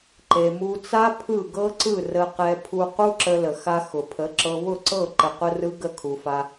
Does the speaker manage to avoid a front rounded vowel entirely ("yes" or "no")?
yes